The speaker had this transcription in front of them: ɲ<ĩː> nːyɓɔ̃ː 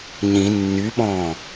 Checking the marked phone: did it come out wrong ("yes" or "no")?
yes